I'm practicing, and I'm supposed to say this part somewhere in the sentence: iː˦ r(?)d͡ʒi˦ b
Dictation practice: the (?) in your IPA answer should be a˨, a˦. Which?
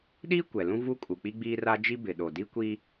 a˦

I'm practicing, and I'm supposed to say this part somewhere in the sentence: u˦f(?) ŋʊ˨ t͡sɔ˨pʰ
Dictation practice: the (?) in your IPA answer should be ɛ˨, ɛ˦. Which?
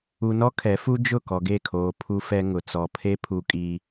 ɛ˦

